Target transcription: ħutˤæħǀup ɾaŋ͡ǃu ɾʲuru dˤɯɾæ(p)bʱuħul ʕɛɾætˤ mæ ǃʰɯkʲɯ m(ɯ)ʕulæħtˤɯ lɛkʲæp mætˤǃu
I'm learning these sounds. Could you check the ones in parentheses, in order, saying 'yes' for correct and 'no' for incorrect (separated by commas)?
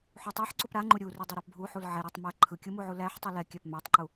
yes, no